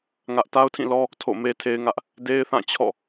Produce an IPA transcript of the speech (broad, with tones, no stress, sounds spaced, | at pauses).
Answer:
ŋ ä˦ ʔ t a˦ ʊ̯ tʰ ĩ˦˨ l ɔ˦ | tʰ o̰˦˨ m e˦ tʰ e˦ ɪ̯ ŋ ä˦ ʔ | d e˦ ɪ̯ θ ã˦˨ t͡ɕʰ ɔ̰˦˨